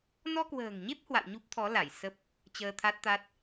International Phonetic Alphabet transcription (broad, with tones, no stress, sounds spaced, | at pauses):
n ɔ˧ k w ə̤ː˨˩ ŋ ɲ e˦˥ p̚ h w a̰˧˨ w ɲ u˦˥ p̚ t̪ʰ ɔ˨˦ l a˧˩ j s ə˦˥ p̚ | t͡ɕ əː˧ t̪ʰ a˦˥ t̚ t̪ a˦˥ t̚